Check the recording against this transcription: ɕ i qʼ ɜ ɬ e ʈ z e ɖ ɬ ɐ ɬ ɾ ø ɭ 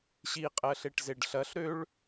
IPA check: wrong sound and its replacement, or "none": none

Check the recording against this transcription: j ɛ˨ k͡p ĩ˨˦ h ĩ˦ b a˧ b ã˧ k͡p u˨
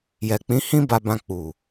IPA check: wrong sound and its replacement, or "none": none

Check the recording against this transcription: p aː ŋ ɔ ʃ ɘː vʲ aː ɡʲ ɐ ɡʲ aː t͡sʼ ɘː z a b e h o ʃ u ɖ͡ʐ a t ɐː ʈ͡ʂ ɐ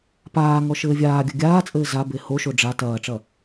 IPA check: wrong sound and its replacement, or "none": u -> o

